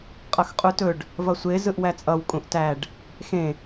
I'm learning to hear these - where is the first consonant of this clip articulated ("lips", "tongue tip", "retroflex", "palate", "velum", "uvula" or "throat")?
uvula